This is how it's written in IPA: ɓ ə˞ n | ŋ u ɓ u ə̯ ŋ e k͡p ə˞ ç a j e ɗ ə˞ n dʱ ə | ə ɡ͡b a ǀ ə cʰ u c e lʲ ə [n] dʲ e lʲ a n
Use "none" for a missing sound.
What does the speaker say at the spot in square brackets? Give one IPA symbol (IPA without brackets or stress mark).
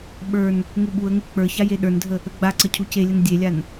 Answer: n